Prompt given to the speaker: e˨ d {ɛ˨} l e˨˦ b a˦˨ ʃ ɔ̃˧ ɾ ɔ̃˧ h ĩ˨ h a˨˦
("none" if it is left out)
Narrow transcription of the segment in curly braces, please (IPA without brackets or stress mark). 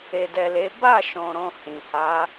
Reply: ɛ˨